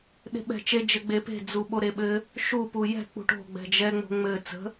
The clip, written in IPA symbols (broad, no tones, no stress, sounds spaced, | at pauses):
ɗ e̤ ɓ ɛ̤ t͡ʃ e d͡ʒ ɘ ɡ͡b e p e̤ d͡z u ɓ o ɾ e ɓ ɘ | ʃ u p u j ɛ̤ k͡p ṳ ʈ o̤ ɡ͡b ɛ̤ d͡ʒ ɛ ŋ͡m o̤ ŋ͡m ɘ t͡s ə̤